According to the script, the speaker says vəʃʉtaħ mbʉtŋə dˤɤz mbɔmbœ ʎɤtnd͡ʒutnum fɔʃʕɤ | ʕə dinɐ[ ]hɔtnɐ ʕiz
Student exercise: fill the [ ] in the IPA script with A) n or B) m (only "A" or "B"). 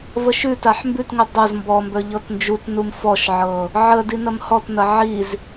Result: B